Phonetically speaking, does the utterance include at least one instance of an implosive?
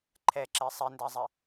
no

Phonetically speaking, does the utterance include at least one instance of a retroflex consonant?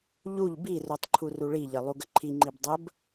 yes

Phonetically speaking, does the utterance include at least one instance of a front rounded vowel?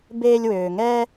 yes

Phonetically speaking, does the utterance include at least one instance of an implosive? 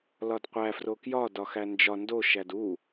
no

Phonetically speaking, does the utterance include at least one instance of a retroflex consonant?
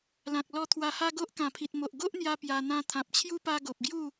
no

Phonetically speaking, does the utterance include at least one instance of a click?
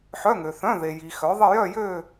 no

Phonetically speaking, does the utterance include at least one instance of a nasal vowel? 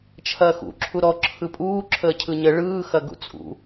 no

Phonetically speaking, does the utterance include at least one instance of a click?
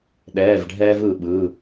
no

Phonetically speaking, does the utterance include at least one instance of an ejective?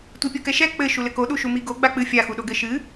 no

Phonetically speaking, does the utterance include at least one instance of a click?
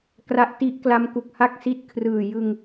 no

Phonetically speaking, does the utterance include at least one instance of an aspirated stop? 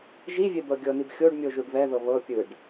no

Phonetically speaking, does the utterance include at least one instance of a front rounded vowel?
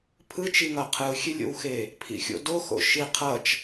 no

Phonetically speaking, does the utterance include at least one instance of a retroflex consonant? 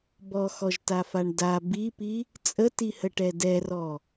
yes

